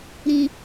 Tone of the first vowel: low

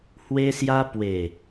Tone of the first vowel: high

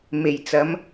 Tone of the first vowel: low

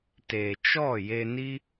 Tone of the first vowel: low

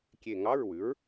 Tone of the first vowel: falling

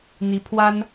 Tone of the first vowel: rising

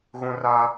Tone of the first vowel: high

